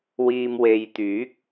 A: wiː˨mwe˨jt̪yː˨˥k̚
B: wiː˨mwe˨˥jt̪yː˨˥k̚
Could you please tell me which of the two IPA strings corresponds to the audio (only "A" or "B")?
A